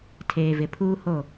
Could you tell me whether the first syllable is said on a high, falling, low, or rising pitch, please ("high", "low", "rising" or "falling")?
low